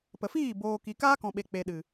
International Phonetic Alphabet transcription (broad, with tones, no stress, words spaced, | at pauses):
pə˨fiː˦˨ boː˨ ki˨kaː˦kɔ̃˨ɓe˨ k͡pe˨ɗɨ˨